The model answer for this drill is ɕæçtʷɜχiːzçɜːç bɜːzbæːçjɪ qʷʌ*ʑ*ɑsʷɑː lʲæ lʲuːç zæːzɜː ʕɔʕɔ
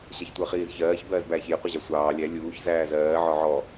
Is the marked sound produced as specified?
yes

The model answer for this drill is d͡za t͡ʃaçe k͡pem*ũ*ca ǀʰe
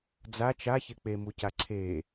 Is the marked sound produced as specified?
no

